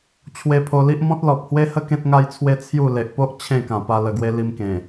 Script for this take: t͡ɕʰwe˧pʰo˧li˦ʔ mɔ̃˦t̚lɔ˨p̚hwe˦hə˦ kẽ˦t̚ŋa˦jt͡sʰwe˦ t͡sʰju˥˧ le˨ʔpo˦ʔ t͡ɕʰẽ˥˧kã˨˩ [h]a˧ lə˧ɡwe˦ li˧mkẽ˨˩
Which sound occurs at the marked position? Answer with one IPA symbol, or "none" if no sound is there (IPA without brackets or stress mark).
p